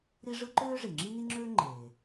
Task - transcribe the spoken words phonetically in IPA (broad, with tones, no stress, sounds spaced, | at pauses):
ɾ i˥ ʐ ɯ˥ ǃ øː˥ ʐ i˩ ŋ͡ǁ i˥ n i˥ ŋ͡ǁ øː˥ ŋ͡ǃ eː˩